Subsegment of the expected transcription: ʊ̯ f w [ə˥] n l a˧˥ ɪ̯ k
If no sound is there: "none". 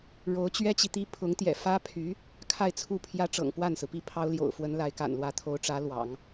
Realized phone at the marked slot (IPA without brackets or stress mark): ə˧˥